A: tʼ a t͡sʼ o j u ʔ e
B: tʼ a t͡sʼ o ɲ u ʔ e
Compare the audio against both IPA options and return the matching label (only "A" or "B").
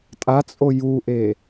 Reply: A